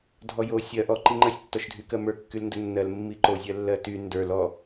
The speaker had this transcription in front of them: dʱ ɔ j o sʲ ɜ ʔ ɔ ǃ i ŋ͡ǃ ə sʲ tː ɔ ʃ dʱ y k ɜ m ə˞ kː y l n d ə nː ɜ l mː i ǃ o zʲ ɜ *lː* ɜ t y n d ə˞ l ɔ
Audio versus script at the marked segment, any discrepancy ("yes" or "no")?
no